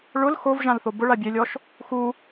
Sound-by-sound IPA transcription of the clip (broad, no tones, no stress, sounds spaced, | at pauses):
ɭ ʊ l x o v ʒ ã l θ o b ʊ ɭ a bʲ e lʲ ɔ ʃ | x u